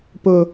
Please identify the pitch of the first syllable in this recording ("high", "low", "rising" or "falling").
low